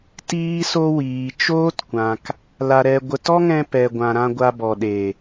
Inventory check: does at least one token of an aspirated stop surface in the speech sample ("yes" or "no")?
no